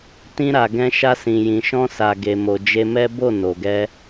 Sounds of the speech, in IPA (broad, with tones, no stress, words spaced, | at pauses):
tĩ˧ɾa˨ɡɛ̃˧ʃa˧ sĩ˨jĩ˨ʃɔ̃˧ sa˨ɡe˨mo˨ d͡ʒe˧mɛ˦ bo˦˨ no˨ɡɛ˧